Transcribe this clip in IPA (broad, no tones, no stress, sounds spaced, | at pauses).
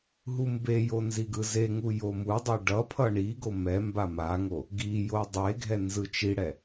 ɦ u m b e j o n z i ɡ ɯ z e ŋ u j o m u dˤ e ɖ ʌ pʰ ʌ ɳ i ɡ o m ɛ m b a m a ŋ o | ɡ i j o dˤ e ɡʱ ɛ n z ɯ t͡ʃ i ɽ ɛ